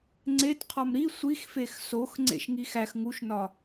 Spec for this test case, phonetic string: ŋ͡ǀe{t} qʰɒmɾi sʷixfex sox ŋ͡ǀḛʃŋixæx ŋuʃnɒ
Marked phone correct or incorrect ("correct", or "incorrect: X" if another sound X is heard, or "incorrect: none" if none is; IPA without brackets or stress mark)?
correct